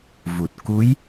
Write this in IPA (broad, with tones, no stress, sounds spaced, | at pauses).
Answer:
v u˨˩ t̚ k u˧˥ j